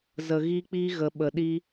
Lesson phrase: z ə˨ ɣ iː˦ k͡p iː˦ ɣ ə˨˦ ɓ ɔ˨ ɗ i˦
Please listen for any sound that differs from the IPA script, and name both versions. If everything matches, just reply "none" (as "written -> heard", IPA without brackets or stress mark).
ɔ˨ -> ə˨